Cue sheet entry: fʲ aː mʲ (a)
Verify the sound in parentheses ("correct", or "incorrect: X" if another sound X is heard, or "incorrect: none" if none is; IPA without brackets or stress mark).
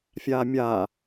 incorrect: aː